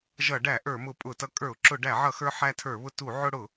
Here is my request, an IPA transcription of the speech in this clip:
ʒʌ˧˩˧ɖæ˧˩˧ ʔə˞˧˩˧mʊ˧˩˧pʼʊ˧˩˧tʌ˧ kʼə˞˧˩˧ʊ̯ǁʊ˧˩˧ɖæ˧˩˧ʕʌ˧˩˧ xə˞˧ħæ˧tʰə˞˧˩˧βʊ˧ tu˧˩˧ ʕʊ˧ɽʊ˧˩˧

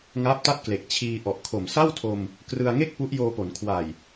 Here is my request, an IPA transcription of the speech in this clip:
ŋaː˦˥p̚ta˥˩t̚kle˨˩k̚ t͡ɕʰiː˧ ʔɔ˨˩ʔkʰo˨˩m sa˥˩wtʰo˧m | krɯ˧a̯ŋe˥˩k̚ pu˦˥ʔjoː˧po˩˦n kʰwa˨˩j

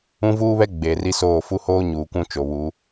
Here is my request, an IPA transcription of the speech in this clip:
ũ˦vuː˦βɛ˦ ɡ͡be˨ ri˦soː˦˨ fu˦hoː˦ ɲuː˨kʷũ˦ t͡ʃo˨βu˨˦

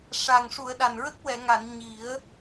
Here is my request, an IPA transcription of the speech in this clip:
ʂa˨˩ŋ ʂu˨˩˨ə̯ ɗa˨˩nɹə˦˥k̚ wɛ˨˩˨ŋa˨˩˨n ɲi˨˩˦ə̯

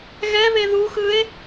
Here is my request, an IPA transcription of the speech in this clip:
ɣɛβe ðuxɯe̯

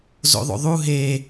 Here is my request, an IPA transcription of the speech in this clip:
zo̰ðˤo̰ðˤu ɦe

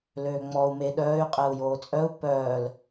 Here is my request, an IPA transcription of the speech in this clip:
løːŋ͡mɔu̯ meɗœːy̯ qʼɛu̯joːt͡sʼœu̯ pœːl

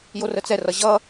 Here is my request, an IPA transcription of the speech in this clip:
jorət͡sɛrʌ ʑʌ

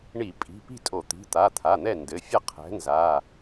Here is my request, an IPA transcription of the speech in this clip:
ɳi˧˩˧pʼi̤˩˧˩pi̤˥˨tʼo˧˩˧ t̪i̤˩˧˩t̪a˩˧˩t̪ʰa˩˧˩ n̪ɛ˥˨ndɘ˩˧˩fʲɐ˥˨ qʰɛ̤˨˥nza˩˧˩

